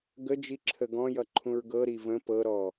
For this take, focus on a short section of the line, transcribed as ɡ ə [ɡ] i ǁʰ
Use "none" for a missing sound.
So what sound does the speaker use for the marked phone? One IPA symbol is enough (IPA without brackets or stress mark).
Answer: d͡ʒ